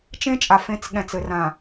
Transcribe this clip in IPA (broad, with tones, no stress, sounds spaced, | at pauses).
t͡ʃ ẽ˦ t͡ʃʼ a˨ f ẽ˦ t͡s ɠ ɛ̃˨ t͡s ɘ˨ r ã˨